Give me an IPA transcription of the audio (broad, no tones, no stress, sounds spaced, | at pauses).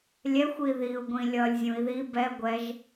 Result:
lʲ ɛ xʷ i ð i u̯ ɡʷ ĩ lʲ ʌ lʲ zʲ ũ i̯ ð i b ɛ ɡʷ ɛ ʒ